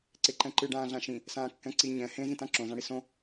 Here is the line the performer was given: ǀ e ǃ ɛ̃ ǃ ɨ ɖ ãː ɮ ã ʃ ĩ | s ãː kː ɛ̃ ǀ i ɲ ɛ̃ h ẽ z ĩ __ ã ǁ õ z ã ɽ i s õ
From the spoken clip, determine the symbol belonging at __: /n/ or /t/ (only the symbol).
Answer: t